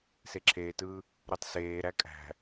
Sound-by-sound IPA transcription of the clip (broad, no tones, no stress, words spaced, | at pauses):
seǁʰeːtɯː | ɾøtˤseːɾæ kʼæ̤